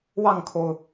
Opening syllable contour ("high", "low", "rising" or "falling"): falling